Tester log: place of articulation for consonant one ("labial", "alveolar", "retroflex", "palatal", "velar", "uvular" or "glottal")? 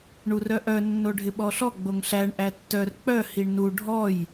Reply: retroflex